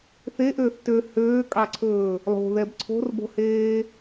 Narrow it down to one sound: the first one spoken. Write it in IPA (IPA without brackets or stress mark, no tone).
θ